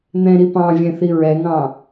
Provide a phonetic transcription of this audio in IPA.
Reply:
n̪ ɛ̃ ɾ i p ɑ̃ vʲ ɛ̃ θ i ɹ ɛ ŋ ɑ̃

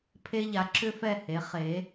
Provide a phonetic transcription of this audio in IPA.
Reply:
pʰ e˧ ʎ a˩˧ ǁ ʏ˧ f ɛ˧˩ h e˩˧ χ e˩˧

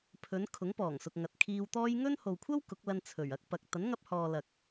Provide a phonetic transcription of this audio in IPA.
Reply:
pʰ ɵ˨˧ n kʰ ʊ˨˥ ŋ p ɔː˨˩ ŋ s ʊ˨ k̚ ŋ ɐ˨ t̚ kʰ iː˧ w t̪ ɔː˥ j ŋ ɵ˥ n h o˨ w kʷʰ ɐ˥ w k ʊ˨˥ k̚ l ɐ˧ n t͡sʰ ɵ˨˩ ɥ ɐ˨˥ k̚ p ɐ˨ k̚ t̪ ɐ˨˥ n ŋ ɐ˧ p̚ h ɔː˨ l ɐ˨ k̚

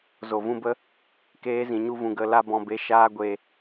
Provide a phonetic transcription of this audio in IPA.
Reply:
z o˨ v ũ˧ b ə˦ | k eː˧ z ĩ˨ ɲ u˧ v ũ˨ ɡ ə˦˨ l a˦ b ɔ̃˧ b e˧ ʃ aː˦ ɡʷ e˦

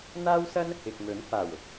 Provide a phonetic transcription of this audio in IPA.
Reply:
n̪ aː˥ w s ɐ˥ n | ɪ˨ k̚ m ɵ˨˥ n f aː˨˩ w ʊ˧ k̚

